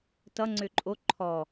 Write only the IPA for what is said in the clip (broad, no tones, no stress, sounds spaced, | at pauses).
t ʌ ŋ͡ǀ ø ǃʼ o ǃʰ ɔ